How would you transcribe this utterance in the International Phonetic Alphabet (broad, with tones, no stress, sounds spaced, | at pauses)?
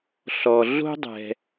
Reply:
ɬ ɔ˨ ɮ o̤˦ dˤ ɛ̤˨